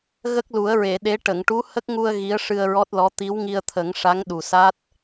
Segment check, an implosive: present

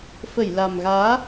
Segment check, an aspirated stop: absent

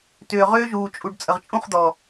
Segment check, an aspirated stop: absent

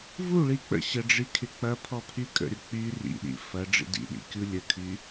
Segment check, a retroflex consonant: present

